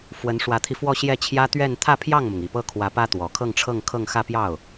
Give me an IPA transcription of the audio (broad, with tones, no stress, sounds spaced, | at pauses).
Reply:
f w ə˧˥ n ʂ w ä˧˥ t̪ʰ i˧ f w ɔ˥˧ ɕ j ɛ˥˩ t͡ɕʰ j ä˥ t̪ ɥ ɛ˥˧ n t̪ʰ ä˥˧ pʰ j ɑ˥˩ ŋ m ʊ˩ ŋ i˨˩ p ɤ˥˩ kʰ w ä˧˥ p ä˥ t̪ w ɔ˨˩ kʰ ɤ˥˧ ŋ ʈ͡ʂʰ ɤ˥˧ ŋ kʰ ɤ˥˧ ŋ x ä˥˧ p j ɑ˥˩ ʊ̯